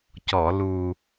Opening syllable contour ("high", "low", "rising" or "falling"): low